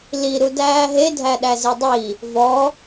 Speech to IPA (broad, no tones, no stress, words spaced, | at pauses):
liɾu dæːɦedʱæɗæ zidˤi | vɔ